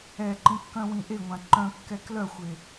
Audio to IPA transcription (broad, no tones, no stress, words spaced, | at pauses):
ɛǃĩkːœ̃wĩ ʔeŋʷã ǃœ̃kːɛ klœxʷe